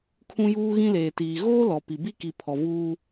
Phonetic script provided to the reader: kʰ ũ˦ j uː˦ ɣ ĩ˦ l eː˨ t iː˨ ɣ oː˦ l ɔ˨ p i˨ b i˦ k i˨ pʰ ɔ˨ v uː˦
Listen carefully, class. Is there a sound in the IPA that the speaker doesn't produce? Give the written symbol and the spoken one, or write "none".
none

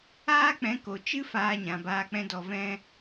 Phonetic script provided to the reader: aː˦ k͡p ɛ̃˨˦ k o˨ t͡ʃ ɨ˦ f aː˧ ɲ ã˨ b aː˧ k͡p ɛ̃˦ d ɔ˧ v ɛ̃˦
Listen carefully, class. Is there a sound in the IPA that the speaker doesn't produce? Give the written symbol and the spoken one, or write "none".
none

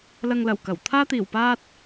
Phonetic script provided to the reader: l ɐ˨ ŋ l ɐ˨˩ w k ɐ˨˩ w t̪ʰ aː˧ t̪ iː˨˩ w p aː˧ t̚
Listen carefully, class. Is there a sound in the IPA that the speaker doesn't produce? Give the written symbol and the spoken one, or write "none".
none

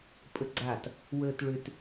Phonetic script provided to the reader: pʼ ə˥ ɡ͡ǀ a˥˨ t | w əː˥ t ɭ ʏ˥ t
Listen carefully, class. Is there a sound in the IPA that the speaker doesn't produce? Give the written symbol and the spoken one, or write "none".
none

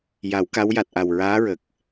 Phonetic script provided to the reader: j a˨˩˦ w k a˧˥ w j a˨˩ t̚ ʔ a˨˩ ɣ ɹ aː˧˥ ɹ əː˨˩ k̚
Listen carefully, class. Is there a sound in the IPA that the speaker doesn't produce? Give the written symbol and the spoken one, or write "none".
ɣ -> w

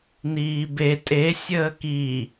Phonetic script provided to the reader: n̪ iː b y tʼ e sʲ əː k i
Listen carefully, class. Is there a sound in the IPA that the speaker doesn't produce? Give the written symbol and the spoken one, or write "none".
y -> e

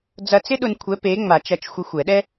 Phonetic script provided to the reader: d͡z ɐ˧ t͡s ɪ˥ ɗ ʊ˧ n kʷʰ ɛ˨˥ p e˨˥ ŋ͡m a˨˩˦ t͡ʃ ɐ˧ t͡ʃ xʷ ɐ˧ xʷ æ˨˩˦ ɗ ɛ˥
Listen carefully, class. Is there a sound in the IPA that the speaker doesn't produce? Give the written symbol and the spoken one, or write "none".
æ˨˩˦ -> ɛ˨˩˦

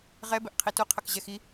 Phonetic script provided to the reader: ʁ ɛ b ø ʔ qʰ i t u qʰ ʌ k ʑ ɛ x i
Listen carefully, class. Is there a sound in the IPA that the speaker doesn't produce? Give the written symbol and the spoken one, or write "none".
ø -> ɛ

